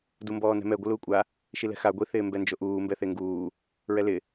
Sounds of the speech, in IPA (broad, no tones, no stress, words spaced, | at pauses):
dumbɔːnɛ̤mɛ ɡʷɪluːkʷʼa | ʃilɛ̤xa ɡʷi θɪːmbɛnd͡ʒoʔuː mbɛθeŋɡuː | ɹɛlɪ